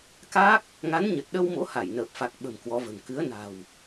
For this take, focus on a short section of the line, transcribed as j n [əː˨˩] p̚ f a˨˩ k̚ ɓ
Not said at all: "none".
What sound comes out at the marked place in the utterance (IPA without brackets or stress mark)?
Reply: əː˨˩